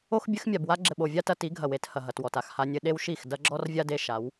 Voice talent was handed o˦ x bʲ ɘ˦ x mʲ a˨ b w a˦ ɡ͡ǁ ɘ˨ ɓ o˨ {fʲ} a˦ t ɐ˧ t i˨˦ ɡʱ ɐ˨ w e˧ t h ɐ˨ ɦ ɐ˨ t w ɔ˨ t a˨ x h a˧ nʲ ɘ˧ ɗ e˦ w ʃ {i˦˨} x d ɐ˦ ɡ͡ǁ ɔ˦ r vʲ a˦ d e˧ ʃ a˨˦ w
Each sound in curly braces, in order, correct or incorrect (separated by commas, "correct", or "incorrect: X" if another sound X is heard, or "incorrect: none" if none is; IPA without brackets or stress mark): incorrect: vʲ, correct